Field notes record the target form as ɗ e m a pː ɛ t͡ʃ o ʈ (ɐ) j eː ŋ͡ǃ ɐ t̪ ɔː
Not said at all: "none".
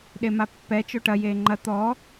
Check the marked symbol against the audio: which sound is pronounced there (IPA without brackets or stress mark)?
ɐ